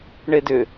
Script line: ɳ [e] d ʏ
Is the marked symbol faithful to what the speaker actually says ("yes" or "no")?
yes